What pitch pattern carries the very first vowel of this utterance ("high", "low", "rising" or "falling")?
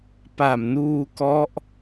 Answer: low